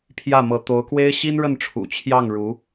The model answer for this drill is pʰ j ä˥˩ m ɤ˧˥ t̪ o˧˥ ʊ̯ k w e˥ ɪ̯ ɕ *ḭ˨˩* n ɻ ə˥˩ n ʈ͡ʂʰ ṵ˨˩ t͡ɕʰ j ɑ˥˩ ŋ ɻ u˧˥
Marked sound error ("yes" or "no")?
yes